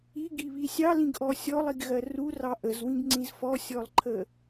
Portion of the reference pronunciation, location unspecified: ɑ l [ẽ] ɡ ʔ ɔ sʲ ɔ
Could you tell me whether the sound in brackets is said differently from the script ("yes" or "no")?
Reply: yes